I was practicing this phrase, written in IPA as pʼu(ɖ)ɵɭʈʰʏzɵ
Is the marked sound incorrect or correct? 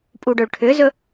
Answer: correct